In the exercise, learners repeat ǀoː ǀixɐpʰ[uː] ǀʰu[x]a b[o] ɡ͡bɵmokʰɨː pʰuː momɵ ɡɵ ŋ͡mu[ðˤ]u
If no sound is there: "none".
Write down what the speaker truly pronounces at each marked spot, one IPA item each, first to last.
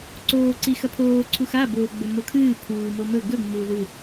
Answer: oː, x, o, ð

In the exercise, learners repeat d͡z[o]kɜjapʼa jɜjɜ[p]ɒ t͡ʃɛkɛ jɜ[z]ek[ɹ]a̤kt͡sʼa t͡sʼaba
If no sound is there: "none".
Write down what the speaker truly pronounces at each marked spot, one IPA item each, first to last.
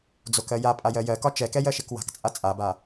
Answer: o, k, ʃ, w

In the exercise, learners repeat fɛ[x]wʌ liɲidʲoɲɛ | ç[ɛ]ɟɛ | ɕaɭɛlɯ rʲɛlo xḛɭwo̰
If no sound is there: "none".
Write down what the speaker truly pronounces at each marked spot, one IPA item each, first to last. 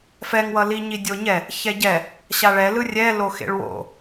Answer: ŋ, ɛ

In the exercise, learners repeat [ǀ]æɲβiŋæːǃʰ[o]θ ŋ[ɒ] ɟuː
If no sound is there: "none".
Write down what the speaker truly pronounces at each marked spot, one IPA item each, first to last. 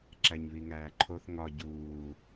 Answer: ǁ, o, ɒ

